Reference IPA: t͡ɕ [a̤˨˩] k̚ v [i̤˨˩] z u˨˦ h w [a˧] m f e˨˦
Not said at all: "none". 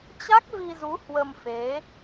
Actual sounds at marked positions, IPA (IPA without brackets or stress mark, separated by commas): a˦˥, i˧, ə˧